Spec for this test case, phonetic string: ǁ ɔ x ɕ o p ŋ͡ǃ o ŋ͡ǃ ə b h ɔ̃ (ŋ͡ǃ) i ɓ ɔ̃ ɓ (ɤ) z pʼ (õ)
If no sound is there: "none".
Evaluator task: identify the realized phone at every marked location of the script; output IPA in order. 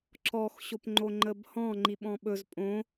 ŋ͡ǃ, ɵ, õ

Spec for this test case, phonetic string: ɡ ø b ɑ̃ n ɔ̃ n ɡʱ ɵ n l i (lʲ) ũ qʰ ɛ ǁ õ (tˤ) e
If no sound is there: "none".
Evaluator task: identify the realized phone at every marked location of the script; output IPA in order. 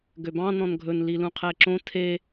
l, tʰ

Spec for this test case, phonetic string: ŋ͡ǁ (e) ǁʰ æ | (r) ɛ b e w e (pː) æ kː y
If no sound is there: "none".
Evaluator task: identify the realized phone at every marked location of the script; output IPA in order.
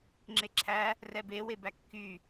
e, r, b

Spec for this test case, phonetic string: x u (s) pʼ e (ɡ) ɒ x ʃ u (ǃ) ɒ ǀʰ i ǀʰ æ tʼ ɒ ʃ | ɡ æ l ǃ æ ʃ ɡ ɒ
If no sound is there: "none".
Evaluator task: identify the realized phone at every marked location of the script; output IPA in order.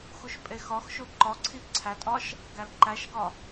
ʃ, x, ǃ

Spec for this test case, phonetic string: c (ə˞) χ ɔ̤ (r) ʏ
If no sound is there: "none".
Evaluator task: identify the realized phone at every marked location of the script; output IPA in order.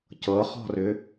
ɤ, r

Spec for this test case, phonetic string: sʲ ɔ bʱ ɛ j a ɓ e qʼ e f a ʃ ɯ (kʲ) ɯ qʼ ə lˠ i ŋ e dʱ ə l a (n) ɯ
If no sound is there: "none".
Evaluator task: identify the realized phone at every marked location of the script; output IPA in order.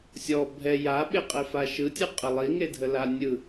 tʲ, nʲ

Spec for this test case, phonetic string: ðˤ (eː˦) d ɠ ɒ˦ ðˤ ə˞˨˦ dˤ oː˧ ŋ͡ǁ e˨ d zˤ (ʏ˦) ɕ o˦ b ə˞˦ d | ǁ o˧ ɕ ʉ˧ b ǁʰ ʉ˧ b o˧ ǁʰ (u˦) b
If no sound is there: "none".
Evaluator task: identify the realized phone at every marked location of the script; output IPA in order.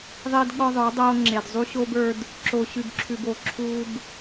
eː˦, u˦, uː˦

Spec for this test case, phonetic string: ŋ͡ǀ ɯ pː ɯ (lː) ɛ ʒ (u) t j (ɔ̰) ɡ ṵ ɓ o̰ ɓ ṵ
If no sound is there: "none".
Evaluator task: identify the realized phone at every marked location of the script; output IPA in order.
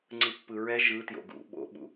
ɹ, ɯ, o̰

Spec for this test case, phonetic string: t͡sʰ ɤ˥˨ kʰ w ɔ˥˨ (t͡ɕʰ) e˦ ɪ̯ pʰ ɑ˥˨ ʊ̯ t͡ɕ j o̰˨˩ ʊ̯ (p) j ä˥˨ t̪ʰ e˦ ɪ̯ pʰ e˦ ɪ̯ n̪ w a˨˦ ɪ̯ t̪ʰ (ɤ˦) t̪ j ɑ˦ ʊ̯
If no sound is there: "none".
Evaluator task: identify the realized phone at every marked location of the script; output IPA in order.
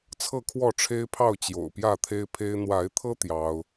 ʈ͡ʂʰ, p, ɤ˦

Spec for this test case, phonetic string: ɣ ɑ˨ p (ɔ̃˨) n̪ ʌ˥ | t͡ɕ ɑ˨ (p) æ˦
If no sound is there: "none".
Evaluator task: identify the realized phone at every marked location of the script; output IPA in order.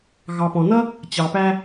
ɔ̃˨, p

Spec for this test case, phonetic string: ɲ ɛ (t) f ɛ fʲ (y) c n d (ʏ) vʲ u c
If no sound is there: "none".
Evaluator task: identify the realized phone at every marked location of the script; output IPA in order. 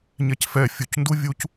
c, u, u

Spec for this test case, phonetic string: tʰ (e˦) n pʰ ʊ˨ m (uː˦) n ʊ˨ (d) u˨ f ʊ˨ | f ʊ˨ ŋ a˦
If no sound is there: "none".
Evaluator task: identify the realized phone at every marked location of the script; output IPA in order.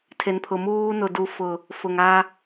e˨, uː˦, d

